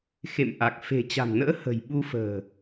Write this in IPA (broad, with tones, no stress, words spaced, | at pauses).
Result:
xḛ˧˨mʔa˨˩k̚ fe̤˨˩t͡ɕa̤˨˩mnə̰ː˧˥ hə̤˨˩jɓu˧fə̤ː˨˩